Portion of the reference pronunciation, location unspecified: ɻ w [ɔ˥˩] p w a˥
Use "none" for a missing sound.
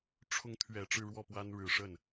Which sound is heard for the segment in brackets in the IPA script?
ɔ˥˩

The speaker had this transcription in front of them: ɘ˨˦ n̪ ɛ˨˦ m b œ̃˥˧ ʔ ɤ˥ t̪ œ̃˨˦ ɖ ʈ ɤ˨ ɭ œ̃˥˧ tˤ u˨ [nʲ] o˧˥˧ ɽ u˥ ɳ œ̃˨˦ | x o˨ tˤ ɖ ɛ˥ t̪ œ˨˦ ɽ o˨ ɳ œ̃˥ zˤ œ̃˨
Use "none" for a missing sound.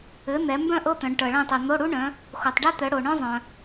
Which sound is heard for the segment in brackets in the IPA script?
n̪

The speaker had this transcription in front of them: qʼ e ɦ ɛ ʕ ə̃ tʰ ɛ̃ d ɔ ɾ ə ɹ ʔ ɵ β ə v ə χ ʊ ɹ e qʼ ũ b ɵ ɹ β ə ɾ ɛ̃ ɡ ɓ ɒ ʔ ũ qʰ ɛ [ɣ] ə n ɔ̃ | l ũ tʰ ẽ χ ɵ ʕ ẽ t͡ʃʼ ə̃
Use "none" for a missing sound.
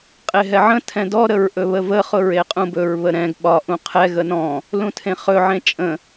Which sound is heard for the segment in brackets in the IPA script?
ɣ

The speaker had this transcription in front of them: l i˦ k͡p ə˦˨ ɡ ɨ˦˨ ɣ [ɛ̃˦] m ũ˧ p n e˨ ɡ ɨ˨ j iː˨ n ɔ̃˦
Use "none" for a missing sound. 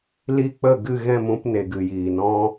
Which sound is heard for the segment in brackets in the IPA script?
ɛ̃˦˨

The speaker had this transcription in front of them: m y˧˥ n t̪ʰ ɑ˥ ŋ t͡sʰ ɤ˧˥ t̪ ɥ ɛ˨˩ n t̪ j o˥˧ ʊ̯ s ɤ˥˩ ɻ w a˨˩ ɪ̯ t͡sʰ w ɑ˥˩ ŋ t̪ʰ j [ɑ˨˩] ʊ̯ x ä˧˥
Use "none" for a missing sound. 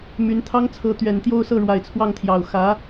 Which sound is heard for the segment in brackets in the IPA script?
ɑ˨˩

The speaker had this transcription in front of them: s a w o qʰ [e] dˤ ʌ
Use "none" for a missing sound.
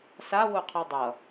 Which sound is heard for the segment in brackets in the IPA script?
i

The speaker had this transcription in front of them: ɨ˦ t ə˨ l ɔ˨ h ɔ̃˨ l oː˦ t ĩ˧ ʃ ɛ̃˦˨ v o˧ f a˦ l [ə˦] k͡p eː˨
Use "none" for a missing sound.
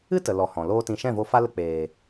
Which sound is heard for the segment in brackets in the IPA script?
ə˧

